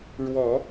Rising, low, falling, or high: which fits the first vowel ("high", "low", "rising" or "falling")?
low